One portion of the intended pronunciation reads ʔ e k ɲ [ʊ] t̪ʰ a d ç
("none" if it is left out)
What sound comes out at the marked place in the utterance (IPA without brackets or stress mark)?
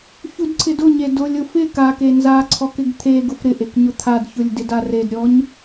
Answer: ʊ